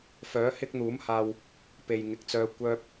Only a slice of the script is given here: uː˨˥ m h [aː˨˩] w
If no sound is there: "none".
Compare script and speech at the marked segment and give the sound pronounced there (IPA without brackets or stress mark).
aː˧